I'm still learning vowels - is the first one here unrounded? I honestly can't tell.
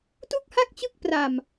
no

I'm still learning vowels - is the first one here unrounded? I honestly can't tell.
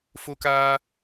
no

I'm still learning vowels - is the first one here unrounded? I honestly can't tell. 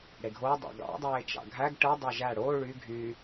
yes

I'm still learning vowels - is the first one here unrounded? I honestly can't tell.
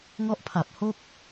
no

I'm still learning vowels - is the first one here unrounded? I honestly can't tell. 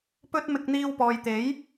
no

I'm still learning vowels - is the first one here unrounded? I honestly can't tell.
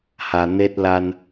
yes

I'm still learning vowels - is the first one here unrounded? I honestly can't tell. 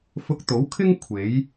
no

